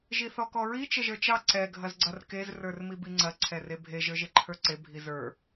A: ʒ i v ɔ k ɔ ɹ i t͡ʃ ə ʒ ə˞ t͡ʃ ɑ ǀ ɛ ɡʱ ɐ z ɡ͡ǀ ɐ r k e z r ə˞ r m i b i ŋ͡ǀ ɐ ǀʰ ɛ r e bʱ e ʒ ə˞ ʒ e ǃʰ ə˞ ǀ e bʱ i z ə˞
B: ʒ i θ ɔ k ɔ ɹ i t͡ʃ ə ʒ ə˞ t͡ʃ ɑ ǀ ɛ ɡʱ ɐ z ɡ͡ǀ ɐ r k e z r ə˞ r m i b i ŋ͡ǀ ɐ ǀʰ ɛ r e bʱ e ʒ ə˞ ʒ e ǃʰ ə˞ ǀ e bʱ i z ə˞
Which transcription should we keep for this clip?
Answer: B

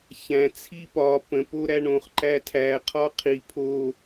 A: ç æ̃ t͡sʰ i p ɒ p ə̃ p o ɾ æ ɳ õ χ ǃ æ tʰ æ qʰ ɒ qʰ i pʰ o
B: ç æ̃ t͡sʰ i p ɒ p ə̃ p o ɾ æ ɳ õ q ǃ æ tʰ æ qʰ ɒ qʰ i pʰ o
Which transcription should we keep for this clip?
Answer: A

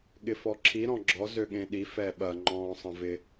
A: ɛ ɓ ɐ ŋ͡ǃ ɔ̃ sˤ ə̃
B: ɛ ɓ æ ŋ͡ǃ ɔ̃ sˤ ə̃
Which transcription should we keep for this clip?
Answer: A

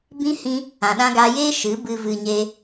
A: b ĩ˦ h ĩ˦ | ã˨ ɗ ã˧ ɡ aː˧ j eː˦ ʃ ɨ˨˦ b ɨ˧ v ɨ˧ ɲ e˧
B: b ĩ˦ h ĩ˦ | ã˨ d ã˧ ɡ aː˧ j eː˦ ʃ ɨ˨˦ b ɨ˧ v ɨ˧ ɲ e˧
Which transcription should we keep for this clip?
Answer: A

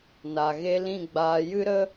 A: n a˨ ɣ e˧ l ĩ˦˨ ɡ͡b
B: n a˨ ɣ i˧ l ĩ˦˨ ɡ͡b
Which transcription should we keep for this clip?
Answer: A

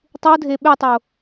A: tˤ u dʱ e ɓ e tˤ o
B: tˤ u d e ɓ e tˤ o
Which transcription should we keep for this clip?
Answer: A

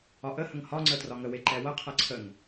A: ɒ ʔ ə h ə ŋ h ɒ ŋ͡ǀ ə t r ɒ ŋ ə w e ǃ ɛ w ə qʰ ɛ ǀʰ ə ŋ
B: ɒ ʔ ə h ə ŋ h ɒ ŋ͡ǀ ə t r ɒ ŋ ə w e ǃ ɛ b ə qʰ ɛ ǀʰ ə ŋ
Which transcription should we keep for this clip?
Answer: A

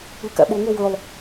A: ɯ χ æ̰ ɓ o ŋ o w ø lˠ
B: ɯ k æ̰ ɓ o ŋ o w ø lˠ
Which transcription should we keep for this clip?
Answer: B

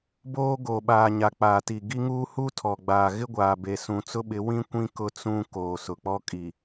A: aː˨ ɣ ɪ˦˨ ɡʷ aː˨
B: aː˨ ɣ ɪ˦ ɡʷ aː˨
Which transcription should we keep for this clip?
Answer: B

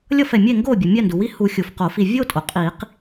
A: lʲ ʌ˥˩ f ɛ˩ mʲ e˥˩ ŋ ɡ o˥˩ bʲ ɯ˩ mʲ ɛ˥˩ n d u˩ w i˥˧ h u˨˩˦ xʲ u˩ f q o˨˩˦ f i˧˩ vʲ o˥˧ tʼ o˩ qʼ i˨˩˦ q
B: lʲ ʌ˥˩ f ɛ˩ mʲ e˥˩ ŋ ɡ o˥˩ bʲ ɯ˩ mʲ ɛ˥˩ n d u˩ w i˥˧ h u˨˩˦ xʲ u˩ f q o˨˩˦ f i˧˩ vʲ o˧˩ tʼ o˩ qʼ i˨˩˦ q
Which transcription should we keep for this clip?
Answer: A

